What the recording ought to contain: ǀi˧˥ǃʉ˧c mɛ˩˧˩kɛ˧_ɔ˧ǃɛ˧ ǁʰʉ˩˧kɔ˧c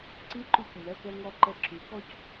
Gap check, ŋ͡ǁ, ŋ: ŋ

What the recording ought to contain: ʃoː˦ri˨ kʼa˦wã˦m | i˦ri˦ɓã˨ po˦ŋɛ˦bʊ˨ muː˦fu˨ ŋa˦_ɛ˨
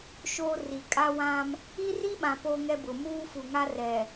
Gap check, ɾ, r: r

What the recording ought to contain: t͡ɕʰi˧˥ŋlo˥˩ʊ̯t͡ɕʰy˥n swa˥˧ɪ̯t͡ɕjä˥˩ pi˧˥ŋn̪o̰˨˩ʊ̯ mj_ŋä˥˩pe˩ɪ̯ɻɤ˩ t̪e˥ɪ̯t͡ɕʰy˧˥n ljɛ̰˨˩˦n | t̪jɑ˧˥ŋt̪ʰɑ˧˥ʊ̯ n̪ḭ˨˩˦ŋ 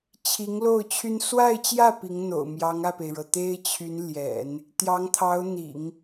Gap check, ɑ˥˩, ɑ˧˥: ɑ˧˥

